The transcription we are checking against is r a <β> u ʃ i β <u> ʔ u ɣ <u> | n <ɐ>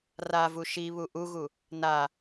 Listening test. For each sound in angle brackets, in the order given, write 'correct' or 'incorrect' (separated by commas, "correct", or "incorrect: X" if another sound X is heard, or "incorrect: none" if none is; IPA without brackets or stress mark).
incorrect: v, correct, correct, incorrect: a